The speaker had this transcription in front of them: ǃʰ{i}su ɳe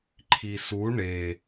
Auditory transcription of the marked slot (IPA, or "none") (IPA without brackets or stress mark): i